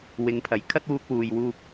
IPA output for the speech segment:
w ɪ˨˧ ŋ pʰ ɐ˨˥ j kʰ ɐ˥ t̚ w uː˧ k̚ w uː˨ j w uː˧ p̚

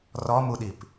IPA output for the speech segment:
r ɔ m u ɗ i p

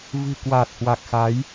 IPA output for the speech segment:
v ɨ̤˨˩ k w a˨˩ t̚ h w a˨˩ k̚ x a˨˦ j

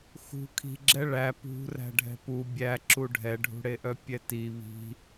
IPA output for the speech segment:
x ṳ kʰ i̤ ɡ͡ǁ ɛ ɭ æ p ṳ r æ̤ ɖʱ ɛ̤ p u bʲ æ ǁ u ɖʱ ɛ ɖʱ ṳ ɽ e ʔ œ pʲ ɛ t i β i̤

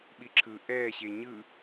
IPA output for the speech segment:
ɓ i ǁʰ ɯ ʔ ɛː ɕ e ɲ ɯ

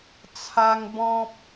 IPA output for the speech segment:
t͡sʰ a˦ ŋ b ɔ̃˦ p̚

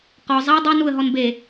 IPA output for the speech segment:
q ɔ zˤ a dˤ y n u ə̯ ɦ ɔ n b e

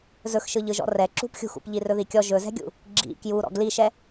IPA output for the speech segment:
z ɵ x ʃ ɯ ʎ ɯ ʒ ɔ̰ r ɛ ǁ ṳ p xʲ ṳ x ṵ p ʎ i r ɵ ð i kʲ ɔ ʒ ɵ z ɛ̤ ɡʲ ṵ | ɡ͡ǁ ḭ k j u ɾ ɔ̰ ɡ l i ʃ ɛ

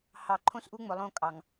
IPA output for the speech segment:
h ɑ˨ ǃʰ õ˦ s ʔ u˦ ŋ͡m ʊ˨ lˠ õ˦˨ kʼ ɑ˨ ŋ

